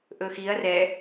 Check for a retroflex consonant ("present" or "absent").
absent